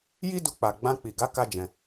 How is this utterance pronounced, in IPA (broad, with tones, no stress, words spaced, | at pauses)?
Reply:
ji˦du˧k͡pa˨ ɡ͡bã˧k͡pi˨ɡa˨˦ ka˦d͡ʒɛ̃˧